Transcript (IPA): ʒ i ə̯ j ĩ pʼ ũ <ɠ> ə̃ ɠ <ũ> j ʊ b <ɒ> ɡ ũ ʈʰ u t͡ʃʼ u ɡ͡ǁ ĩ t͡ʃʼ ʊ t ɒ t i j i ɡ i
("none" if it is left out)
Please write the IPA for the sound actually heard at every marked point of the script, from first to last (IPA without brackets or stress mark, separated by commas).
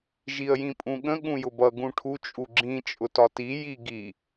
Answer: ɠ, ũ, ʌ